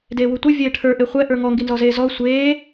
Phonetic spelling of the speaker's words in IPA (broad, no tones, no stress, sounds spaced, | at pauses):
d eː w u tʷ i vʲ eː ʈʰ ə˞ ʔ e χʷ ɛ ʔ ə˞ ŋ ɔ ŋ ɡ i n z ɔ z eː z ɔ sʷ eː